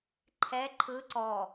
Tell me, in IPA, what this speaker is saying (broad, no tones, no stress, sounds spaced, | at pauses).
ǃʰ ɛ ǃʰ ɯ ǀ ɔ